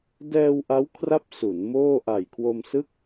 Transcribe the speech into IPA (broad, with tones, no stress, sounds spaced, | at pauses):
d ɛː˧ w ʔ a˦˥ w kʰ r a˦˥ p̚ s u˩˦ n m oː˥˩ ʔ a˨˩ j kʰ w o˧ m s ɯ˥˩ k̚